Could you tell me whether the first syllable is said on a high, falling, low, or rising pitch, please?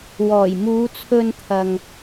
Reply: low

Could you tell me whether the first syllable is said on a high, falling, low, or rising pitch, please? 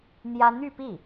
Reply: high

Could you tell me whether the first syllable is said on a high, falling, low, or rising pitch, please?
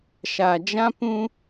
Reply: low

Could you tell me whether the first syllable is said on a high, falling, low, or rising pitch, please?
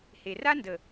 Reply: low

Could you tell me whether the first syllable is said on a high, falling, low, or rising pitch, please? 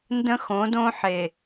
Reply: high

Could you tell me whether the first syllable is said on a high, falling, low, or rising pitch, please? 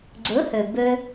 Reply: rising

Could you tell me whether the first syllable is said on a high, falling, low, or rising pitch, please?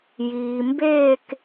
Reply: low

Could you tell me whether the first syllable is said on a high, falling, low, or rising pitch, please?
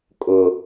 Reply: high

